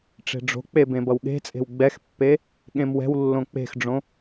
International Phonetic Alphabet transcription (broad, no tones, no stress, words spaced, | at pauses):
ʈ͡ʂe̤ɖ͡ʐo̤k͡pe bẽbʌwɠe̤t͡sʼe̤w ɡ͡bɛxpːe | ɠẽmwɛ̤wlːõ k͡pe̤xɖ͡ʐõ